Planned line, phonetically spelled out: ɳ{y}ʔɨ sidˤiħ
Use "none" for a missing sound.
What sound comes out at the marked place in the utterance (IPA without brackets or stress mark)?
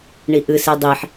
i